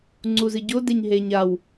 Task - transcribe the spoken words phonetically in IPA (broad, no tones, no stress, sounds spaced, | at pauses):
ŋ͡ǀ u z ɨ ɟ o d e ɲ ɦ e ɲ a w